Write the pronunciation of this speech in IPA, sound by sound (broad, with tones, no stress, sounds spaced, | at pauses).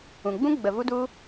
ũ˨ ɡ͡b ũ˦ ɡ͡b ə˨ v u˦ d u˦